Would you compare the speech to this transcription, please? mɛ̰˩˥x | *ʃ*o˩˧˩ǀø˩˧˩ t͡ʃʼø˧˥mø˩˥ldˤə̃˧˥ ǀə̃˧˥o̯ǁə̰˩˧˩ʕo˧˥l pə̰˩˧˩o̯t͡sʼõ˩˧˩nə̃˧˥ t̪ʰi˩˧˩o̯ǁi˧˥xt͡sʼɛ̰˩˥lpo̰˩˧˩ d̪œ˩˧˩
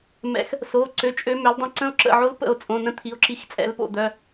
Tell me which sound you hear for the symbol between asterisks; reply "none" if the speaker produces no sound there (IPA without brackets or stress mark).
s